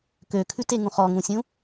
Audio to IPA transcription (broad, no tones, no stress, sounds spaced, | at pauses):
k ø kʰ ʉ t e ŋ ũ χ ɔ ŋ ũ sʲ ũ